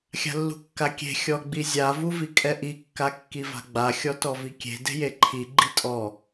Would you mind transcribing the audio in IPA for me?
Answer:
xʲ a̤ lː ṳ kː a kʲ e̤ xʲ ɔ ɡ͡b i zʲ a v u v i kʼ ɛ ʔ i kː a kː i v a̤ ɡ͡b a xʲ ɔ t ɔ v i kʲ e̤ d e̤ j e ǃʰ i ɡ͡ǃ i tʼ ɔ

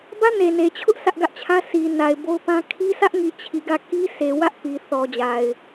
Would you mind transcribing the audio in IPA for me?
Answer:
b ä˦ n e˨ n e˨ t͡ɕʰ ʊ˦ ʔ sʰ ä˦ ʔ ɡ ä˦ ʔ t͡ɕʰ ä˦ sʰ i˨ n a˨ ɪ̯ b o˦ ʊ̯ p ã˦ kʰ i˦ s ä˦ ʔ ŋ i˨ t͡ɕʰ i˨ ɡ ä˦˨ k i˦ sʰ e˨ w ä˦ ʔ p i˨ θ ɔ˨ d͡ʑ a˨ ɪ̯

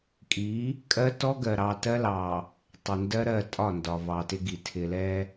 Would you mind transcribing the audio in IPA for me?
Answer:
kʼ i˨˦ | kʼ ɜ˦ t ɔ˦ ɡ ɜ˨ ɾ ɑ˨ t ɜ˦ l ɑ˨ | tˤ ɪ˨ n d ɜ˦ ɾ ɜ˦˨ tʼ ɒ˦˨ n d ɒ˨ v ɑ˨ t ɪ˦ ɡ i˨ tʰ ɪ˨ l ɛ˦

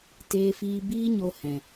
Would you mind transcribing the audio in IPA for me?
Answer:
t eː˧ f iː˧ b iː˦ ɲ o˧ h ɛ̃˨

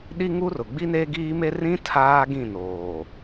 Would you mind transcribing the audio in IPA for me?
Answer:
ɗ i˦ ŋ u˦ r ʊ˨ ɡ͡b i˦ n eː˦ ɡ iː˦ m e˦ r ĩ˦ tʰ aː˦ ɡ ĩ˦˨ n oː˨

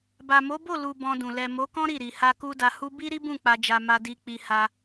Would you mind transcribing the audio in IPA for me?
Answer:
b a˨ m o˨˦ b o˦˨ l u˨ b ɔ̃˧ d ũ˨ l ɛ˨ m o˨˦ k ɔ̃˦ ɾ i˦˨ ɾ i˨ h a˧ k u˦ d a˧ h u˦ b i˦ ɾ i˦ b ũ˦˨ k͡p a˧ d͡ʒ a˧ m a˧ d i˧ k͡p i˧ h a˧

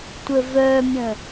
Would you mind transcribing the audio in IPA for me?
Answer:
tʷ ə v œ mʲ ə̃

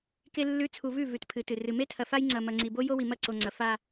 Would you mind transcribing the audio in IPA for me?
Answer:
k e˨ lː ʉ˨˦ t͡sʰ u˨ v ʉ˦˨ v ʉ˨ t pʰ ɨ˨˦ t ɨ˨ r ɨ˨ m e˦ tʰ ɐ˨ f a˦ j ŋ͡ǀ ɐ˨ m ɐ˨ ŋ͡ǀ i˨ b o˦ j o˦ w i˨ m ɐ˦˨ ǀ o˨ ŋ͡ǀ ɐ˨ f a˦

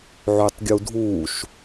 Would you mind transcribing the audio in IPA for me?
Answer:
ʕ y tˤ ɡʲ u dʱ uː ʃ

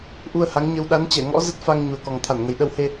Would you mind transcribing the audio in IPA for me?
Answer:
ʔ u˧ ə̯ h a˨˦ ŋ ɲ ə˧ w ɗ a˨˦ n t͡ɕ ɛ˧˩ ŋ ɔ̰˧˥ z ə˦˥ t̚ f a˧ ŋ ɲ u˨˩ ə̯ k ɔ˨˩ ŋ t̪ʰ a˧˩ n ŋ ə˨˩ j ɗ ə˧ w h e˧

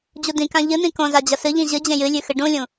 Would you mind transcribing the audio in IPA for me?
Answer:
d͡ʑ u d ĩ k ã ʎ ɨ n̪ ĩ k õ z a d͡ʑ ɐ s ɨ ʎ ĩ ʑ ɨ d͡ʑ ẽ j ɨ lʲ ʉ x ɨ ɖ ũ lʲ ũ

